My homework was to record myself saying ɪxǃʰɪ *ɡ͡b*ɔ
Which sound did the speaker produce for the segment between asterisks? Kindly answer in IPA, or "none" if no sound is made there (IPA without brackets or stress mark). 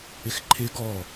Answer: ɡ